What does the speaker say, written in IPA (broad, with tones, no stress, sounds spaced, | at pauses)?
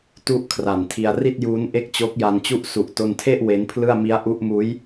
t u˥˩ ʔ kʰ r a˨˩ n tʰ i˧ a̯ r i˥˩ t̚ j uː˦˥ n ʔ e˥˩ k̚ t͡ɕ o˦˥ k̚ j a˧ n t͡ɕ u˥˩ ʔ s u˨˩ ʔ t o˧ n tʰ e˥˩ ʔ w e˦˥ n pʰ l ɯ˥˩ a̯ m i˦˥ a̯ ʔ u˦˥ ʔ m uː˦˥ j